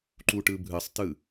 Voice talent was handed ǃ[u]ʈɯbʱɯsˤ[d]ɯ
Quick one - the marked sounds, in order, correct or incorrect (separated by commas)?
correct, incorrect